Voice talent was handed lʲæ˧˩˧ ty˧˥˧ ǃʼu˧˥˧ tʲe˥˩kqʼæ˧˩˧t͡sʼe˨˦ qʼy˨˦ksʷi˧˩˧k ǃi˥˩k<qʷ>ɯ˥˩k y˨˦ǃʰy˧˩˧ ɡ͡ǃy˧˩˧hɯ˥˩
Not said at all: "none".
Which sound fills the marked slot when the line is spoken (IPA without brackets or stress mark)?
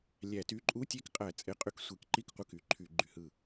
qʷ